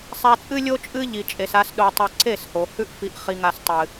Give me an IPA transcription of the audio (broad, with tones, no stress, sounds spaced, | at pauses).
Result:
sˤ a˧ t͡sʼ ɨ˦ lʲ o˦ t͡ʃʼ ɨ˦ ʎ i˨ t͡ʃʼ e˨ s a˧ s ɗ o˨ tˤ ʉ˨ ǀ e˦˨ s h o˨ h ʉ˦ ʔ f i˧ ʔ χ i˧ ŋ a˧ s tˤ ɨ˨